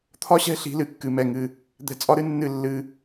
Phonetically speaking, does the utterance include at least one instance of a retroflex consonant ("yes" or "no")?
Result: no